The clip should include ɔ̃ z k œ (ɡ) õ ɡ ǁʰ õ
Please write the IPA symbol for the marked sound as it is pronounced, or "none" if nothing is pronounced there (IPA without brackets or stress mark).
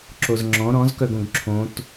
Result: ɡ